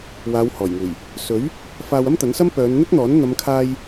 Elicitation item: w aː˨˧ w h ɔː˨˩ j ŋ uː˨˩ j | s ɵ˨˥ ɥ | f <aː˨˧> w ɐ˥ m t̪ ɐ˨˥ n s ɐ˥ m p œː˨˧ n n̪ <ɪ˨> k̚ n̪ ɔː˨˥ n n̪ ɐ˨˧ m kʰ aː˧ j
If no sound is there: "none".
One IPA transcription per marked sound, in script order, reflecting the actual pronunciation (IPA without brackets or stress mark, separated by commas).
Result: aː˧, ɪ˥